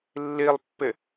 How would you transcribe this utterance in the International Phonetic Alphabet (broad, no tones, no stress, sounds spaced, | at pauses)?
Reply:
lː i lˠ pː ɪ